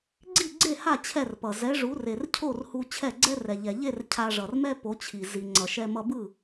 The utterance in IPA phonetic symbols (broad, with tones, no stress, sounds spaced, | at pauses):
ɡ͡ǀ i˥˩ ɡ͡ǀ e˥˩ h a˥˩ t͡ɕʰ ɛ˥˩ r p ʌ˩ z ɛ˩˥ ʐ u˩˥ r e˩ r cʰ o˥˩ r h u˧ t͡ɕʰ ɛ˥˩ ɡ͡ǀ ɛ˥ r ɛ˩ ʎ ɛ˩ ʎ e˥˩ r cʰ a˧ ʐ ʌ˩ r m ɛ˥ p o˩˥ t͡ɕʰ i˩ z i˩ ŋ͡ǀ ʌ˩ ʃ ɛ˧ m ʌ˧ b ɯ˥˩